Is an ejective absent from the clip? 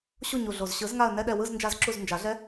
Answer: yes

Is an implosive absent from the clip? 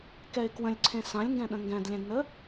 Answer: no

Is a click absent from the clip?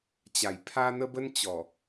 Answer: yes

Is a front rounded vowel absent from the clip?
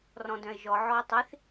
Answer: no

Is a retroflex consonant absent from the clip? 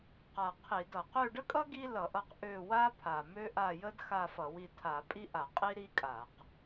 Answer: no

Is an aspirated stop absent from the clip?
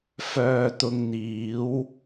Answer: yes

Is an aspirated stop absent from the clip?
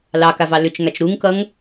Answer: yes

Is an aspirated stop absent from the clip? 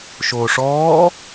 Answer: yes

